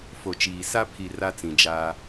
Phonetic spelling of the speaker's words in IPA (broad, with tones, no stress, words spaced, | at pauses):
fo˨t͡ʃiː˨ sa˦pʰi˨ ra˦t͡sĩ˨d͡ʒaː˦